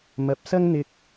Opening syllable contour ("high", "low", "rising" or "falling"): rising